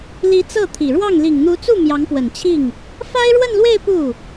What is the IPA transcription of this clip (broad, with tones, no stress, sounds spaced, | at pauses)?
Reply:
l i˧˥ t͡s ɤ˥˩ t̪ʰ i˨˩ ɻ w ɑ˥˩ ŋ l i˨˩ ŋ n̪ u˧˥ t͡s u˥˩ m j ɑ˧˥ ŋ p w ə˨˩ n t͡ɕʰ i˥˩ ŋ | f a˥ ɪ̯ ɻ w ə˥˧ n l w e˥˧ ɪ̯ p u˥˩